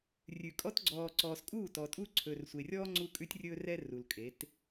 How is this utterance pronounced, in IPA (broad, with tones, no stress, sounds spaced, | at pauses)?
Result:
rʲ ʉ˨ kʼ ɔ˦ t ɡ͡ǀ ɔː˨ ǀ ɔː˨ s kʼ uː˦˨ t ɔː˨ tʼ u˦ ǀʰ ɵː˨ r sʷ e˨ rʲ ɔː˦ ŋ͡ǀ u˦ kʼ ʉ˦ tʲ rʲ ɵː˦ r ɛ˦ r u˨ l kʼ e˨˦ t